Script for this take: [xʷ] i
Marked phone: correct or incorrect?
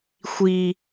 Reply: correct